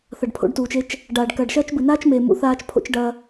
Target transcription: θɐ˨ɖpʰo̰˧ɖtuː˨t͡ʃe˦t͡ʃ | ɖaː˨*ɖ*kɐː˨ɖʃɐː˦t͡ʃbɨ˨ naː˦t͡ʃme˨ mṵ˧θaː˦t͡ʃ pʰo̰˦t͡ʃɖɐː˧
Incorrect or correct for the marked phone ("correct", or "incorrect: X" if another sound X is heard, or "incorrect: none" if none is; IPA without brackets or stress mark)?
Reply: correct